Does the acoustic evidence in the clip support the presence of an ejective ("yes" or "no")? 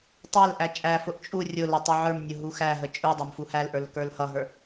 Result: yes